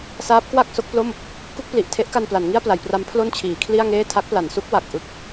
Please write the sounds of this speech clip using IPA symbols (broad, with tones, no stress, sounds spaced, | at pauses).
s aː˦˥ p̚ k w a˥˩ k̚ s o˦˥ k̚ p l o˥˩ m | k u˥˩ k̚ p l i˨˩ ʔ tʰ e˦˥ ʔ k a˧ n p l a˩˦ n ŋ i˥˩ a̯ p l a˩˦ j p r a˦˥ m pʰ l o˥˩ n t͡ɕʰ iː˩˦ kʰ l i˥˩ a̯ ŋ eː˥˩ tʰ a˦˥ k̚ p l a˩˦ n s u˦˥ k̚ w a˨˩ k̚ ʔ ɯ˦˥ k̚